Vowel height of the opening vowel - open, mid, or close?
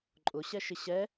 close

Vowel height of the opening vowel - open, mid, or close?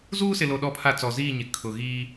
close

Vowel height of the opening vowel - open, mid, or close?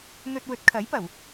mid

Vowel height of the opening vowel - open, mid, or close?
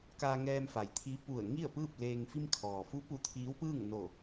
open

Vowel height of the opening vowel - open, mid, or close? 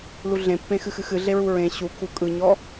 close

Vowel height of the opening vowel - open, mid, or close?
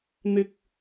close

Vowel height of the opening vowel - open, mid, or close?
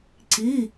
close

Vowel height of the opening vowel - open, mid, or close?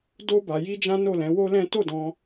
mid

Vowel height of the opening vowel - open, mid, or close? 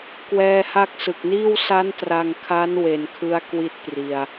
mid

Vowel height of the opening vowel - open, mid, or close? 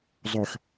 mid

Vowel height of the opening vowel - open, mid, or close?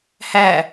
open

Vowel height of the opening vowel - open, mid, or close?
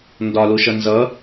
open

